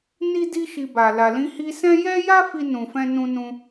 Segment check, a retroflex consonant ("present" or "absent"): absent